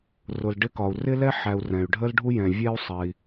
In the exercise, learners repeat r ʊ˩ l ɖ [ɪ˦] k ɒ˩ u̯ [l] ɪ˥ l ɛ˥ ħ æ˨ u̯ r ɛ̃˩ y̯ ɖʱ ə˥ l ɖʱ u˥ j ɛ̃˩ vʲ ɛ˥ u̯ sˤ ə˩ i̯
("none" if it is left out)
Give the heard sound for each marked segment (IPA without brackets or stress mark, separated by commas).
ɪ˦, r